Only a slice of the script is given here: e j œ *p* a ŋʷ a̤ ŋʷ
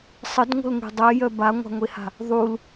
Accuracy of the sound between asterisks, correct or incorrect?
incorrect